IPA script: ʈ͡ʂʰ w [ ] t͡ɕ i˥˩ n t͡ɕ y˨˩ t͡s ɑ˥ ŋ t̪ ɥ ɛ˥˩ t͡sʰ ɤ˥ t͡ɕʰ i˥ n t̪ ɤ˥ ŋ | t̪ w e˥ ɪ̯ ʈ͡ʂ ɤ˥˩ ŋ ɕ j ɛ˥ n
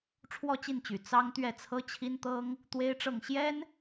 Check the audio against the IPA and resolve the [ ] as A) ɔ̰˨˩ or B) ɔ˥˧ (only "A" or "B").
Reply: B